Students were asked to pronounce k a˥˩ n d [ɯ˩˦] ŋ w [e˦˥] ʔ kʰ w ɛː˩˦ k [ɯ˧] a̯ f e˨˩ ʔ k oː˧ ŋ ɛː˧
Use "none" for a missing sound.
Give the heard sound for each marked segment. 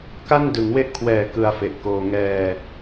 ɯ˩˦, e˦˥, ɯ˧

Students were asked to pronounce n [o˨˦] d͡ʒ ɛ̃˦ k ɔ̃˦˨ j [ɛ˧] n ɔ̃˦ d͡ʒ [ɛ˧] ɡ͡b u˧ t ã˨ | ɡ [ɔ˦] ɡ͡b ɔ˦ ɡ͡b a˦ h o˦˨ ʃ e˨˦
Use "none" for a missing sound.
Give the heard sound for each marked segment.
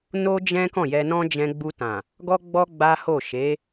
o˦, ɛ˧, ɛ̃˧, ɔ˦

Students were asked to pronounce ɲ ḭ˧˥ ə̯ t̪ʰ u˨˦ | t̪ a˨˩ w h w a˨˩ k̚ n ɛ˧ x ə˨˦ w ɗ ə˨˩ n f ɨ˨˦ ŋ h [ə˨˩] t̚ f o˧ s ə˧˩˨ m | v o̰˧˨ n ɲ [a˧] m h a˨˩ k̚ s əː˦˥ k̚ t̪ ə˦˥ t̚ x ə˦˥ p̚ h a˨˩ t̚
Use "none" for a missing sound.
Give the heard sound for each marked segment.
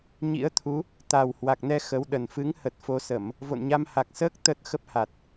ə˨˩, a˧

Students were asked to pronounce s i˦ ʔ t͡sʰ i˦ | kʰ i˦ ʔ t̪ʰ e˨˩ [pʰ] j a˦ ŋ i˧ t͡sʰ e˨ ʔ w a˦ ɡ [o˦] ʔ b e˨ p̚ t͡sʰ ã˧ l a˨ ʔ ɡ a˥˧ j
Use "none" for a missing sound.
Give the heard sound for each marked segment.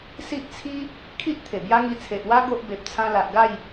b, o˦

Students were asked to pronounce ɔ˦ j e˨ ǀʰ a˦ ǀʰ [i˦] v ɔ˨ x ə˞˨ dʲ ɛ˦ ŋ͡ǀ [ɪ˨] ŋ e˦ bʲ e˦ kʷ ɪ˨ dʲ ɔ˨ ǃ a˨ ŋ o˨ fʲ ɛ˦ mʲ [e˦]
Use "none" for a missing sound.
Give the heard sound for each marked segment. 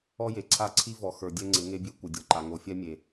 i˦, ɪ˨˦, e˨

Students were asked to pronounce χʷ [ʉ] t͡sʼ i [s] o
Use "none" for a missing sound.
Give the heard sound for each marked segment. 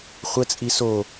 ə, s

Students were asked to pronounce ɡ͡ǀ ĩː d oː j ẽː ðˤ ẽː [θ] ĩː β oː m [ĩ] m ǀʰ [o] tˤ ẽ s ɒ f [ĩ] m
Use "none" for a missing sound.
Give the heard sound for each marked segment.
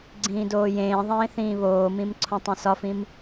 θ, ĩ, õ, ĩ

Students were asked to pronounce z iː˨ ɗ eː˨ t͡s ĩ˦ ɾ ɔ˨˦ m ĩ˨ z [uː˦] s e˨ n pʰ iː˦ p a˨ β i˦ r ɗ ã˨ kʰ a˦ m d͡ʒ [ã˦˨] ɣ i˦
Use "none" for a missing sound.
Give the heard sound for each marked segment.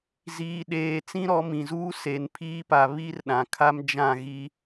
uː˦, ã˦˨

